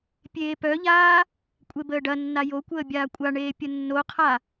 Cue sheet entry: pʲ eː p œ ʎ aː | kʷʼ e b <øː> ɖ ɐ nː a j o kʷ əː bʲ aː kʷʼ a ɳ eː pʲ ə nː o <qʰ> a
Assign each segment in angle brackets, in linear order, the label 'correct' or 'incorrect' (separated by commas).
incorrect, correct